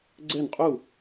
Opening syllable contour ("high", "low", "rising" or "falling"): falling